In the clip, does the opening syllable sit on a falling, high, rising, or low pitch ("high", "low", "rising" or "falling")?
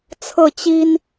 falling